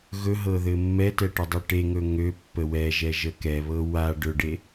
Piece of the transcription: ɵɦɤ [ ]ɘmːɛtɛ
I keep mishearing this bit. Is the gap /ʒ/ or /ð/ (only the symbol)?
ð